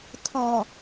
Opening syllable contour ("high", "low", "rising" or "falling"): low